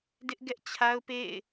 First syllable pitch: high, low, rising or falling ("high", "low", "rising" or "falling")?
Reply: high